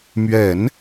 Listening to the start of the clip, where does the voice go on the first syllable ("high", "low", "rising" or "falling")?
low